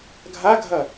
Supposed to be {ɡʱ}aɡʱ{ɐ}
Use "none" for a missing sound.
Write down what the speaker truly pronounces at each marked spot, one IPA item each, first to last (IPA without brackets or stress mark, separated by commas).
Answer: ɡʱ, ɐ